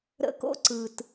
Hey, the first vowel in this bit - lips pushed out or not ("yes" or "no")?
no